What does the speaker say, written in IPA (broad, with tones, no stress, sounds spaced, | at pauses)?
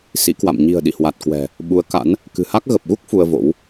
s ḭ˧˥ k w a̰˧˨ m ɲ i̤˨˩ ə̯ ɗ ḭ˧˨ h w a˨˩ t̚ k w ɛ̤˨˩ | ɓ u˨˦ ə̯ k a̰˧˥ n | k ɨ̤˨˩ h a˦˥ k̚ ɣ ə˨˩ p̚ ɣ u˦˥ k̚ f u˧ ə̯ v o̰˧˥ w